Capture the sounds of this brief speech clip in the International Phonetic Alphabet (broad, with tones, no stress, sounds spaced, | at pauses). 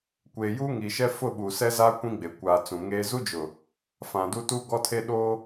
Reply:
kʷ eː˨ j uː˦ ŋ i˨ ʃ ɛ˦ f ʊ˦˨ ɓ u˨ s ɛ˦ z a˦ kʷ ĩ˦ ɡ͡b e˨ kʷ aː˨ t͡s ũ˨ ŋ eː˦ z u˦ d͡ʒ ʊ˨ | f ã˨ d u˦ t uː˦ ɡ ɔ˦ tʰ e˦ ɗ oː˦